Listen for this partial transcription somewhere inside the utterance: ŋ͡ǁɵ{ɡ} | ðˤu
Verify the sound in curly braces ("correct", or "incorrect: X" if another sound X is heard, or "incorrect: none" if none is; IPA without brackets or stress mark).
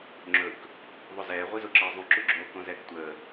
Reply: incorrect: k